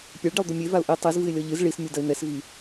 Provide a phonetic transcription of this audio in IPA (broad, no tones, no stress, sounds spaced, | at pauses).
pʲ ɛ ɭ ɖ i lˠ d̪ u mʲ e v a ʊ̯ ʔ i tˤ i z v ɨ ɪ̯ lʲ ɔ ʎ ɨ z ɭ i s mʲ u d ɐ ɪ̯ n̪ ɛ s v i